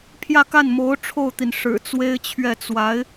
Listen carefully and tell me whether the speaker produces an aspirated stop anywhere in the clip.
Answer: yes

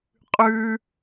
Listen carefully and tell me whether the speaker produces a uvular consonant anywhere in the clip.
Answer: yes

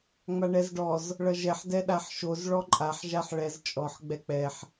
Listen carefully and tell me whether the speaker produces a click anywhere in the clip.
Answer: yes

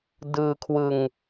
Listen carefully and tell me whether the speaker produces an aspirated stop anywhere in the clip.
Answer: yes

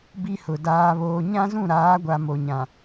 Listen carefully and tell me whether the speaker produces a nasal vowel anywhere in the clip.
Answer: yes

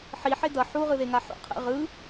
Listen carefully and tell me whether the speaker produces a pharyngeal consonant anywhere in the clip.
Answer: yes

